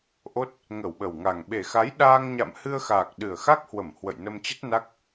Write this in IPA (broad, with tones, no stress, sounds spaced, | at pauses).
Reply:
ʔ o˦˥ t̚ | ŋ ə˧˩ w ɓ ə˨˩ w ŋ a˨˩ ŋ ɓ e˨˩ x a˨˦ j ɗ aː˧ ŋ ɲ a̰˧˨ m h ɨ˧ ə̯ x aː˨˩ k̚ ɗ ɨ˨˩ ə̯ x a˦˥ k̚ h w ə˧˩ m h w ə̰˧˨ j n ə˧ m t͡ɕ ə˦˥ t̚ n a˦˥ k̚